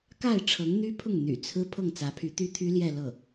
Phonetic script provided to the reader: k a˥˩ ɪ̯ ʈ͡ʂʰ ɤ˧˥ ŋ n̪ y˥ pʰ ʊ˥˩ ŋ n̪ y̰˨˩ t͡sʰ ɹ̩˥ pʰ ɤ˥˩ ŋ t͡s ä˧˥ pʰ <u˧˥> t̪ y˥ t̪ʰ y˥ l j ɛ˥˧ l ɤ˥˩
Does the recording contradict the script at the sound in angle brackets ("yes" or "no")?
yes